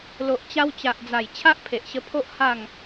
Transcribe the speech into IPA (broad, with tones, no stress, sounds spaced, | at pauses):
l o˨ ʔ t͡ɕ a˧ w t͡ɕ a˨ ʔ d͡z a˨˩ j t͡ɕʰ a˦ ʔ pʰ e˨ ʔ ɕ ə˧ pʰ o˦ ʔ h a˥˧ ŋ